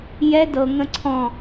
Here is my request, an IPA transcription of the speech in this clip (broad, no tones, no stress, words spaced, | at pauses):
jɛ dɤ ŋə̃ǀʰɔ̃